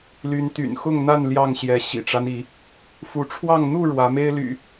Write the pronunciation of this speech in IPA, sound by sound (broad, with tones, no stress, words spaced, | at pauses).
ly˨˦nt̪y̰˨˩nxʊ˥˨ŋn̪a˥˨n ljɑ˥˨ŋɕjɛ˨˦ ɕḭ˨˩ʈ͡ʂa˦ni˨˦ | fu˨˦ʈ͡ʂʰwɑ˥˨ŋ n̪u˥˨ ɻwä˨˦me˦ɪ̯ly̰˨˩